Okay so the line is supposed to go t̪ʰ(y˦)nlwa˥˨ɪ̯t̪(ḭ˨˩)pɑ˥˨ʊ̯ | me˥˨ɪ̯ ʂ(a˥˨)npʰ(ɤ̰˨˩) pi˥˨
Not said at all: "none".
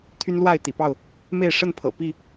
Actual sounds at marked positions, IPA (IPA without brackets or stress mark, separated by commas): y˦, ḭ˨˩, ə˥˨, ɤ̰˨˩